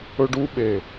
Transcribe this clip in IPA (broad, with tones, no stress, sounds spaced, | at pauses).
ɵ˧ ɖ u˧ ɓ e˨˩